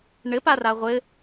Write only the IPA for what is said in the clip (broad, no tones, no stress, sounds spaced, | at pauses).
ɳ ɘ p a r a ʁʷ ɘ